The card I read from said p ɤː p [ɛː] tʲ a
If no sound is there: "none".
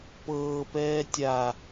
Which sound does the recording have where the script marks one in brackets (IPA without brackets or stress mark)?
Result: ɛː